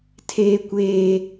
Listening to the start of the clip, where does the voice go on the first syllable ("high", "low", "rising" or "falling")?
high